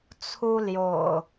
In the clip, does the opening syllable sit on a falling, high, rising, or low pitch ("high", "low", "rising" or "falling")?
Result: high